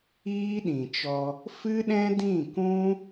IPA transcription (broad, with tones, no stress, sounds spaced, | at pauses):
iː˦ ɗ ĩ˨ t͡ʃ ɔ˧ | f ɨ˦ ɗ ɛ̃˦ d ĩ˦˨ k ũ˦